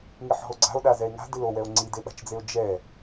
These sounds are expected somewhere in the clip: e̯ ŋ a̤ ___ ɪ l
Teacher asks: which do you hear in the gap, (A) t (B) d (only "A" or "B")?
B